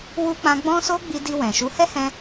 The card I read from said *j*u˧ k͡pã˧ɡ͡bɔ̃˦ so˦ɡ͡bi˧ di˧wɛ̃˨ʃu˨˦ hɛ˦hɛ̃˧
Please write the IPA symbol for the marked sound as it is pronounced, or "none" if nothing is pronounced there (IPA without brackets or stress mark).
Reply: w